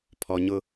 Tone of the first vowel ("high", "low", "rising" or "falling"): low